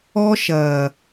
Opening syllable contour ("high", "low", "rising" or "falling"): high